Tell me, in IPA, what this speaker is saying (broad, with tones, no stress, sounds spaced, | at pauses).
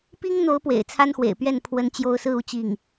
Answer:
p i˥ ŋ n̪ o˧˥ ʊ̯ p w ḛ˨˩ ɪ̯ t͡sʰ a˥ n x w ḛ˨˩ ɪ̯ p ɥ ɛ˥˩ n pʰ w ə˥ n t͡ɕ j o˥ ʊ̯ s ɹ̩˥˧ u˥˧ t͡ɕ i˥˩ ŋ